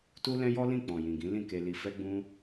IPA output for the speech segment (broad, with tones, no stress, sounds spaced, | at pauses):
t u˦ l ɛ̃˦ j ɔ˦ l ĩ˦˨ k͡p ɔ̃˨ j ĩ˨ ɡ ĩ˨˦ l ĩ˦˨ k e˧ l i˧ f ɛ˦ ɡ͡b ũ˦